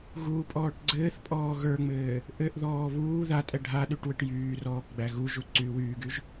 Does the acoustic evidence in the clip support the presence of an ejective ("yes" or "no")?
yes